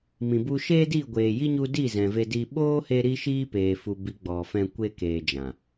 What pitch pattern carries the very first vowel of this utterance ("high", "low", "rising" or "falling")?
low